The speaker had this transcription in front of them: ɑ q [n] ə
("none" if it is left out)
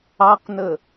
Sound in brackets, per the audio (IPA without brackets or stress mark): n